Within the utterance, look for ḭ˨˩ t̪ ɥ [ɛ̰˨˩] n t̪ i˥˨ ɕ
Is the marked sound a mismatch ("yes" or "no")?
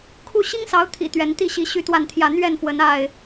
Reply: yes